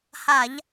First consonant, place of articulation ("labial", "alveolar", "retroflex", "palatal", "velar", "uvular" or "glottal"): glottal